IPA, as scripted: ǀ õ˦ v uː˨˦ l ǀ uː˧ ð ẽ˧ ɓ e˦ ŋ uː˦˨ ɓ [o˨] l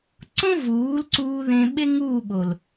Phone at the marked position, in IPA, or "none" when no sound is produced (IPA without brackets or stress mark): o˨